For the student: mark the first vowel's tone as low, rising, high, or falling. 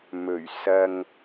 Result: low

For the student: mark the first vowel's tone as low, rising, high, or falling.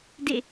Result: falling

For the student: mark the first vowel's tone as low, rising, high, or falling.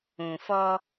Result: low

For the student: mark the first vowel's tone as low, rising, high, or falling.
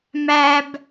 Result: low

